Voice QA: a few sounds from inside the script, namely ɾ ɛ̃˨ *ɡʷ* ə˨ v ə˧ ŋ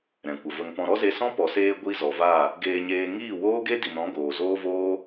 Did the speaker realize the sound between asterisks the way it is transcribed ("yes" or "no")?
no